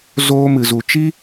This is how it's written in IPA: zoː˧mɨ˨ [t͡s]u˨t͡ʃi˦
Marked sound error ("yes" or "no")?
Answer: yes